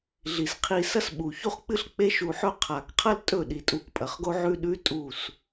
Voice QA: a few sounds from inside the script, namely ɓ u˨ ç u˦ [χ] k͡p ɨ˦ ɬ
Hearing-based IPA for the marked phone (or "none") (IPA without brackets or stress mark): χ